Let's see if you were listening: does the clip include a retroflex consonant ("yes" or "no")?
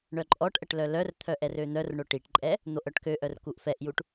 yes